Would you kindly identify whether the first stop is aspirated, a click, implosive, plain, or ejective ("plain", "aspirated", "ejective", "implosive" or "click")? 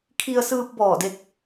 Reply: aspirated